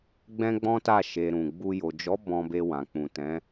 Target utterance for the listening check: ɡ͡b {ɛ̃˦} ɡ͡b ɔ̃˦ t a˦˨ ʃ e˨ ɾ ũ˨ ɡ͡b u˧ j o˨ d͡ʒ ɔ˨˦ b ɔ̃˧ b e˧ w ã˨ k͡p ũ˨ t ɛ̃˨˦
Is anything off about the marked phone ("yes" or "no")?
no